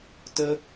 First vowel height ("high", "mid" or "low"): mid